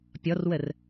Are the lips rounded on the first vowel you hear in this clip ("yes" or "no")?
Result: yes